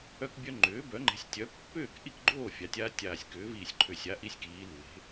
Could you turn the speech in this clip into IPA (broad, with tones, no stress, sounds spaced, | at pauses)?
œ˦ k bʲ œ˦ ŋ͡ǃ ʏː˩˥ b œ˩˥ ŋ͡ǃ e̤˩˥ sʲ tʲ œ˩˥ pː ʏː˥˨ k ʔ i˥˨ k ɡ͡ǃ oː˥˨ fʲ a˩˧ tʲ aː˦ tʲ aː˨˩ sʲ k ʏː˩˧ v iː˨˩ sʲ ǃʰ ʏ˨˩ sʲ a˩˥ ʔ i˩˥ sʲ k iː˩˧ lː e̤˩˧